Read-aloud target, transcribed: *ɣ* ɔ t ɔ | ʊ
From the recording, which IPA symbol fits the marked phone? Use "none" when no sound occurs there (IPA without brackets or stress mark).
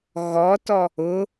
ɣ